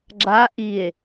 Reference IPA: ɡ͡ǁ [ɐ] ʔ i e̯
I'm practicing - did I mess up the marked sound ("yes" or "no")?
yes